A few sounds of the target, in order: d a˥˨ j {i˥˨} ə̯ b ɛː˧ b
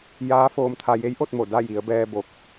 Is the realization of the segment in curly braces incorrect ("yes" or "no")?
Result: yes